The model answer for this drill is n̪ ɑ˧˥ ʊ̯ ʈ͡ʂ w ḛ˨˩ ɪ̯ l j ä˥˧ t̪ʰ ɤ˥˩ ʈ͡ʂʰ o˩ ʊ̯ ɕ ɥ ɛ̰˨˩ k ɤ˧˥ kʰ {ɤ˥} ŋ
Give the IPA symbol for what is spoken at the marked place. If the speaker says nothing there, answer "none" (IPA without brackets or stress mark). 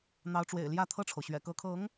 ɤ˧˥